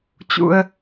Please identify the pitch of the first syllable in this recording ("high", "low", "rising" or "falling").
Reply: high